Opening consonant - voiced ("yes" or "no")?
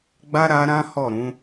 yes